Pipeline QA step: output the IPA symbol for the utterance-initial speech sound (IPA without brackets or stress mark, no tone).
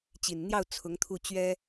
t͡ɕ